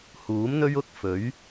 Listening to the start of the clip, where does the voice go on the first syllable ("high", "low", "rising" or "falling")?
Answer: rising